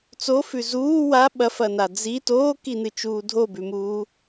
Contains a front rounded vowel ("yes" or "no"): no